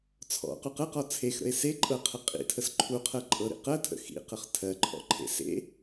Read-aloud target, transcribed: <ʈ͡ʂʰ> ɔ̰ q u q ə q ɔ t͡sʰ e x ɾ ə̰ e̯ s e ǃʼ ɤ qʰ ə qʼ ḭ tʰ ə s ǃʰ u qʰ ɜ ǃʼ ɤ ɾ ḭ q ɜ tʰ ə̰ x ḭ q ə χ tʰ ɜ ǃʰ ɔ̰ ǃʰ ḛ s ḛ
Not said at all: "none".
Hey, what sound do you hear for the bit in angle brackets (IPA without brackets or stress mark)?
t͡sʰ